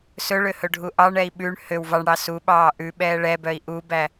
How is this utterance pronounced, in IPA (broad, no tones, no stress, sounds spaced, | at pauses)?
s ɵ ɭ ø h ɵ ɖʱ u ʔ ɑ ɳ ɛ i̯ ɓ ʉ ɳ h ø w v ɑ ɳ ɽ ɑ s u ɓ ɑː ʔ ʉ ɓ ɛː ɭ ɛ b œ i̯ ʔ u b æ